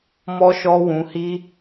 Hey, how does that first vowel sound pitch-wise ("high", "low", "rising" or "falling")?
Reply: high